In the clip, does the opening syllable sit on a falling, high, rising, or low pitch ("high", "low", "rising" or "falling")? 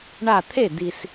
falling